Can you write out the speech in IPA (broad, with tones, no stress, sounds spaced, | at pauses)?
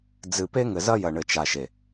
d͡z ɨ˨ p e˦ ŋ ɘ˨ z ɐ˦ j ɐ˨ ɳ ɘ˨ t͡ʃ a˨ ʃ e˨